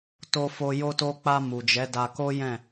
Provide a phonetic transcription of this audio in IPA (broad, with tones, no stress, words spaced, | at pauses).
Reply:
to˧fo˧ jo˧to˧k͡pa˧ mu˨d͡ʒɛ˨˦da˧ ko˦ jɛ̃˦˨